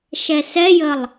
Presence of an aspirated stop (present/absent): absent